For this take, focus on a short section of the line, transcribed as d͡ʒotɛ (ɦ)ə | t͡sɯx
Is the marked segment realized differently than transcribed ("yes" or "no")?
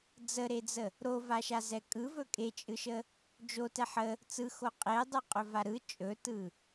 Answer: yes